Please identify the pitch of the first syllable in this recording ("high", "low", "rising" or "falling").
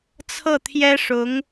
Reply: falling